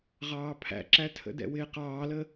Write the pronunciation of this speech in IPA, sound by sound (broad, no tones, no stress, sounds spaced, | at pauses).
ʁ ɑː pʰ æ̰ ǁ æ tʰ ə̰ d ɛ̰ w ɪː q ɑː l ə